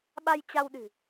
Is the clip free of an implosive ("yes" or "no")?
no